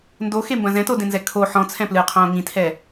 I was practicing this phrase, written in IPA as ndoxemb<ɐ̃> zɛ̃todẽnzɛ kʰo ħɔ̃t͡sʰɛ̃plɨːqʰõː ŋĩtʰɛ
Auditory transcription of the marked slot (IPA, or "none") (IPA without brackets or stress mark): ɐ̃